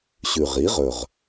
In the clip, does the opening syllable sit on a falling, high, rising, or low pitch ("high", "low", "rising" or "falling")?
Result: low